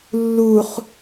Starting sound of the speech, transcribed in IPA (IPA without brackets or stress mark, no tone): lː